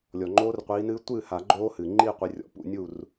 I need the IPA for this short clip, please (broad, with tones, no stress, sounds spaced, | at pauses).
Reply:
lʲ ɔ˩ ŋ͡ǃ oː˦˥ r qʷ iː˨˦ n ɨː˦˥ tʷ ɨː˥˩ h a˨˩˦ ɡ͡ǃ oː˦˥ h ɨː˩ ŋ͡ǃ iː˥˧ qʷ i˨˦ rʲ ɔ̰˨˦ p ṵ˥˧ nʲ u˥˩ r